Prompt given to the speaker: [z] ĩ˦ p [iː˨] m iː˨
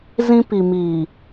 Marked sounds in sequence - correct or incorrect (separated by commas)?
correct, incorrect